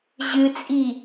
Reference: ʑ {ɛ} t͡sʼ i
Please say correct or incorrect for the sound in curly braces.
incorrect